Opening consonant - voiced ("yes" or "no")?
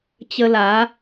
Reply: no